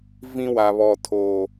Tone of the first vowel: high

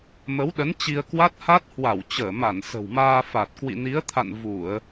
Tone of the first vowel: rising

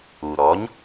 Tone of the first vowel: low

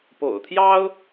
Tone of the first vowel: low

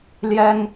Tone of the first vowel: high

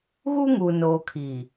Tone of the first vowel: high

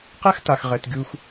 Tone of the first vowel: high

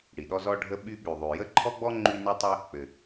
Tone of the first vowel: low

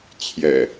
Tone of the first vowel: low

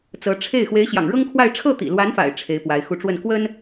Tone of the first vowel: rising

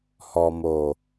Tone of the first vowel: low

